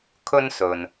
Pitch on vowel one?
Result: high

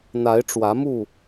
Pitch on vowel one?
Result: rising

